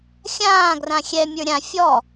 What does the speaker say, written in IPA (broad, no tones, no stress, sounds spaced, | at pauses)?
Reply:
xʲ ãː ɡ r ã xʲ ɛ mʲ ə˞ ɾʲ ã fʲ ɔ